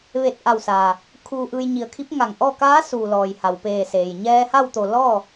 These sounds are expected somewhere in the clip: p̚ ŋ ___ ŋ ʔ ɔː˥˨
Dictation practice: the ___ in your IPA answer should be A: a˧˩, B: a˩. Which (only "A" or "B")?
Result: A